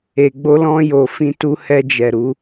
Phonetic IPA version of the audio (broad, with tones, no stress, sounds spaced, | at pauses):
e˨ ɡ͡b o˧ l ɔ̃˧ j o˨ f ĩ˧ t u˧ h ɛ˧ d͡ʒ ɛ˨ ɾ u˨˦